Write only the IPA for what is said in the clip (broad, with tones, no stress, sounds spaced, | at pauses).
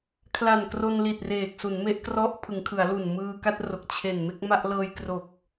kʰ l a˨˩ n k r o˧ n l i˨˩ t̚ r eː˨˩ k̚ s u˩˦ n m e˦˥ ʔ k r ɔ˦˥ ʔ pʰ ɯ˩˦ ŋ kʰ ɯ˩˦ a̯ l u˨˩ n m ɯː˧ k a˥˩ t̚ r o˨˩ k̚ t͡ɕʰ e˨˩ n m e˥˩ k̚ m a˥˩ ʔ l ɤː˧ j k r o˨˩ k̚